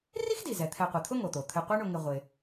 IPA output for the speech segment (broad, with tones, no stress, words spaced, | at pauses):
ri˥xdi˩ zɛ˩t̪ʰɛ˨qʷa˩t̪ʰʊ˥ ŋo˩t̪o˩ t̪ʰɪ˨qʷɛ˦ɳʊ˨ŋɪ˨ ʁʷɪ˩